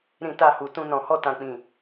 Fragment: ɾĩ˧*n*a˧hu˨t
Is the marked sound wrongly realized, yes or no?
yes